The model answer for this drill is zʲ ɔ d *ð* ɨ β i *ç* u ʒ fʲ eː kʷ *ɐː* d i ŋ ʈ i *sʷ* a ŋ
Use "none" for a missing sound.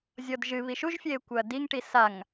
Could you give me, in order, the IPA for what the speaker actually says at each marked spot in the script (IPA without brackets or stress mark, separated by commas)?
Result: ʒ, ʃ, ɐː, s